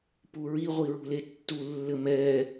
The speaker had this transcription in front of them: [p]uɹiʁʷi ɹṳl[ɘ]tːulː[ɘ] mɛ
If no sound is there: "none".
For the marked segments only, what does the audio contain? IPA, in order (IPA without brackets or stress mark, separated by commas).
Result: p, e, ɘ